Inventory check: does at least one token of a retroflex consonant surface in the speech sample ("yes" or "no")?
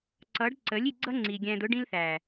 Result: yes